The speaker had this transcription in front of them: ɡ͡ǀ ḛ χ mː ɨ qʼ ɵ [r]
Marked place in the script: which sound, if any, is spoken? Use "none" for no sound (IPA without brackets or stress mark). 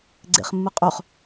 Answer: χ